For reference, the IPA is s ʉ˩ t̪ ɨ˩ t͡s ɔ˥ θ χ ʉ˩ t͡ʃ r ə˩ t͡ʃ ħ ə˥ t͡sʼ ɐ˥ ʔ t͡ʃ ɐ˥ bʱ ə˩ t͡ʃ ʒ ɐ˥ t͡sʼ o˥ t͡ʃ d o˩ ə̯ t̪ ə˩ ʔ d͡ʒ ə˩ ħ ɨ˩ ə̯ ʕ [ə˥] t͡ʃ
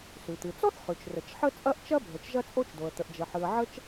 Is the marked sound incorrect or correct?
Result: correct